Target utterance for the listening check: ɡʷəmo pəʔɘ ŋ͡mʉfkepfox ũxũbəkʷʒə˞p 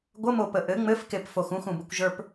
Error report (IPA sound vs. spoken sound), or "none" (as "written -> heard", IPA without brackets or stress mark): ʉ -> ɘ